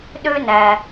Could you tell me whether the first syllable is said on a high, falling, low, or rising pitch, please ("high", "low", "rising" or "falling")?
high